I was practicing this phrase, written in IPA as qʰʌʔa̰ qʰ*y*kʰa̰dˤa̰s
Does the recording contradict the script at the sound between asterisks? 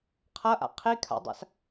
yes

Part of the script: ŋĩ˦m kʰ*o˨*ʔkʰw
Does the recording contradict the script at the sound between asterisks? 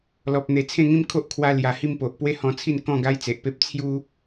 yes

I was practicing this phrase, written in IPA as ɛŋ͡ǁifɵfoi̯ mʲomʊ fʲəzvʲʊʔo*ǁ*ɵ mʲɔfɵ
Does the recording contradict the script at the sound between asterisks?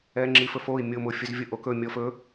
yes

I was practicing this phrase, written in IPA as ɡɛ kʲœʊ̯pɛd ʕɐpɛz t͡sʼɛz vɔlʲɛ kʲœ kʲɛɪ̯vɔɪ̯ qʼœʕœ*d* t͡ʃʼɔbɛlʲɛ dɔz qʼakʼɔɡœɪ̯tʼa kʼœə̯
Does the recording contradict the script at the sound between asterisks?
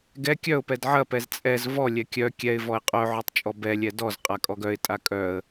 yes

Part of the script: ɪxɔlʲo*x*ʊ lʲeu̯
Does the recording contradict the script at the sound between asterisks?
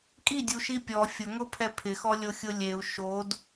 yes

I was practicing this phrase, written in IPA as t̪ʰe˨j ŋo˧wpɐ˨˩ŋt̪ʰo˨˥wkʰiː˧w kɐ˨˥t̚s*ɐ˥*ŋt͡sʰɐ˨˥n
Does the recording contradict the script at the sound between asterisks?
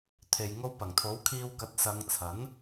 yes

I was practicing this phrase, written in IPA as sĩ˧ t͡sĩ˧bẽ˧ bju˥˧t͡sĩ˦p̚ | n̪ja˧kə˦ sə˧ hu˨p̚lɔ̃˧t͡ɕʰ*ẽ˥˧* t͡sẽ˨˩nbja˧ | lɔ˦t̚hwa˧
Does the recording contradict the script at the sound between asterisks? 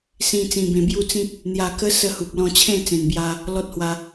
no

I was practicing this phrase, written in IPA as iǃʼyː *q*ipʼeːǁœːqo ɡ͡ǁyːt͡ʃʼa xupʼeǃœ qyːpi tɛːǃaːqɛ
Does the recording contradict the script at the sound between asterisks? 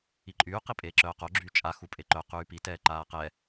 no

